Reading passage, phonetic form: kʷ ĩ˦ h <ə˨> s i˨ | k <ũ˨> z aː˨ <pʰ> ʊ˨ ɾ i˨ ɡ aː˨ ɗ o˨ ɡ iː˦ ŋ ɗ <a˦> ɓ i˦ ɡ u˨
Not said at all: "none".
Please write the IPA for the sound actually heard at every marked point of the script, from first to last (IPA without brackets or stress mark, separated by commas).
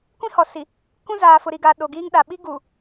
ɔ˨, ũ˦, f, a˨